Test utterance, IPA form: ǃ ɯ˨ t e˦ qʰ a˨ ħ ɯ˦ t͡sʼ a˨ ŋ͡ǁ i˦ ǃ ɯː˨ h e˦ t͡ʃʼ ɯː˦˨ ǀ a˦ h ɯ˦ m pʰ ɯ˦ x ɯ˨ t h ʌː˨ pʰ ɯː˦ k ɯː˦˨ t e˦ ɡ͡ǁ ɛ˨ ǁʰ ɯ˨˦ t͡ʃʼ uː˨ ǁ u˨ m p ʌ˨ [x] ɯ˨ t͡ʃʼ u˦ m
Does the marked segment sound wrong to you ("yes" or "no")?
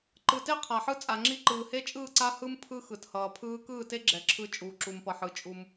yes